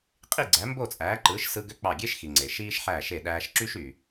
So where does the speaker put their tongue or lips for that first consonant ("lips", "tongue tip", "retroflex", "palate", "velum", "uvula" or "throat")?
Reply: uvula